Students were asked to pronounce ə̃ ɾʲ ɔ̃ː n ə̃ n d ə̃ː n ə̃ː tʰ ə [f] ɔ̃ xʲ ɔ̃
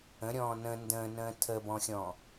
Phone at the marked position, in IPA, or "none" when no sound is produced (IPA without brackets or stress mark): b